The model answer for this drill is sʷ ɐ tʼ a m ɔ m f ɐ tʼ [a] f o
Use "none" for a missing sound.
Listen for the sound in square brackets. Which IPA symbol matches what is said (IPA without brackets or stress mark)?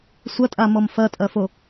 ɐ